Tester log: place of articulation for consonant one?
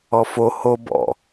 labial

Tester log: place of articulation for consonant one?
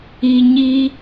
palatal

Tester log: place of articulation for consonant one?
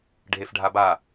retroflex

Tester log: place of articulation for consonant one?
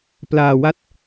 labial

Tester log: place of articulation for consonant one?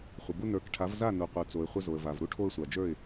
uvular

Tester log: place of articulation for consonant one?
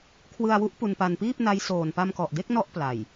velar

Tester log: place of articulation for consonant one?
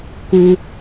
velar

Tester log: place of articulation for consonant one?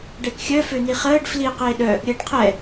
retroflex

